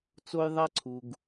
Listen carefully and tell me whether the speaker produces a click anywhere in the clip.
yes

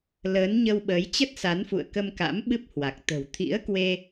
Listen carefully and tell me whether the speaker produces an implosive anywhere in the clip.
yes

